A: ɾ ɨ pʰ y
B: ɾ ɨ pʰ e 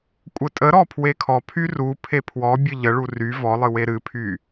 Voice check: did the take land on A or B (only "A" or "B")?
A